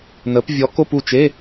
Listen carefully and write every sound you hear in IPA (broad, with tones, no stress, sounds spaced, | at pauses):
n ə˨˥ p vʲ ɔ˨˥ k o˧˥˧ p u˥˨ t͡ʃ e˧˥˧